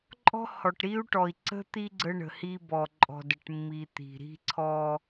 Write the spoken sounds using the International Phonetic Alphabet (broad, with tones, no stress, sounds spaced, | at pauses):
ǃʼ ɔ̤˦ h ɔ˨ ʈ ɾ i˦ u̯ ʈ ɔ˨ i̯ ǀ ə̤˦ t̪ i˦ ɡ͡ǀ ə˦ ɳ ə̤˨ h i˦ b ɔ˨ ǃʼ ɔ̤˨ d ə˨ ʈ mː i˨ t̪ i̤˨ ɾ i̤˦ ǀʰ ɔ˦